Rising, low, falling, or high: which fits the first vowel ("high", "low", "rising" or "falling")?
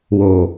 low